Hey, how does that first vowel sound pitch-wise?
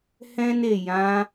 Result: high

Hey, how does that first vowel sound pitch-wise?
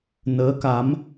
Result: rising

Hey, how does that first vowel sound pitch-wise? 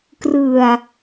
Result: low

